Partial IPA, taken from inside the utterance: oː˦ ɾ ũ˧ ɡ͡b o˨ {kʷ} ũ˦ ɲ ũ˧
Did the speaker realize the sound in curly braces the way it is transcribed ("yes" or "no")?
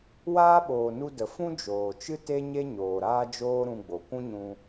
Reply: yes